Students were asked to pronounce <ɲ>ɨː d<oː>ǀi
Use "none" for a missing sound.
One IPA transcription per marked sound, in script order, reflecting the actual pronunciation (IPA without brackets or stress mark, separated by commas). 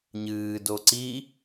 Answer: ɲ, o